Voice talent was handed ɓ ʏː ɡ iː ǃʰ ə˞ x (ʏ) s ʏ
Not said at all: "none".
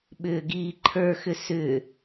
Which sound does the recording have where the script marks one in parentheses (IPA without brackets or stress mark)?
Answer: ʏ